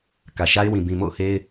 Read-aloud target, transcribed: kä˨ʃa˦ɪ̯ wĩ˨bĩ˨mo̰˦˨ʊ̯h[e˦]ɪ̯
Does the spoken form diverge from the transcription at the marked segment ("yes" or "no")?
no